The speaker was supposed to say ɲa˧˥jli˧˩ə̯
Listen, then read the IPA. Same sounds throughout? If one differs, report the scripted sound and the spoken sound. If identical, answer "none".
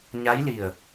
none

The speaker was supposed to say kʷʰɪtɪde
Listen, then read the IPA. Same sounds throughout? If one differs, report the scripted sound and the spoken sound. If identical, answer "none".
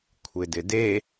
t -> d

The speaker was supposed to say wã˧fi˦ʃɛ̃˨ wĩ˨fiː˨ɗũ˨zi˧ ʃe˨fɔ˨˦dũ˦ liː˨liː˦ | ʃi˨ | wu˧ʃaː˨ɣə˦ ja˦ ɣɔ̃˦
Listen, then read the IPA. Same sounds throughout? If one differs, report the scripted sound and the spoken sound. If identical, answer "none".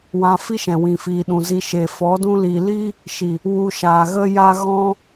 none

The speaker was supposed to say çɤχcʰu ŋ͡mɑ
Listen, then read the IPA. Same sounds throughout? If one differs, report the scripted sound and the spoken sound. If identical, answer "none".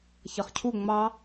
none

